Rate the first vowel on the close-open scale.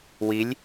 close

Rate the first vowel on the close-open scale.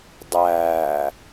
open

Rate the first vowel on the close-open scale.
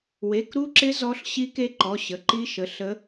mid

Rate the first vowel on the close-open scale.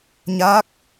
open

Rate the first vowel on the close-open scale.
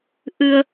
close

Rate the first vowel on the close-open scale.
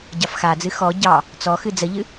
open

